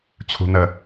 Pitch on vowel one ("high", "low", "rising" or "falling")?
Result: low